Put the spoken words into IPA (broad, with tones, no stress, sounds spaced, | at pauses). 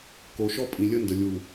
k o˨ ʃ ɔ˦ pʼ ĩ˨ lʲ ə˦ n d ə˨ lʲ u˨